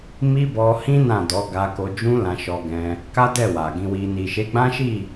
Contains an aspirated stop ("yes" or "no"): no